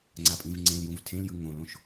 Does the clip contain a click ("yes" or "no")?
yes